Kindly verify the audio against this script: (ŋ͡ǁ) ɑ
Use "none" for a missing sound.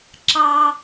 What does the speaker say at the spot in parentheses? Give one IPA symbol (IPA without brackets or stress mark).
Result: ǁ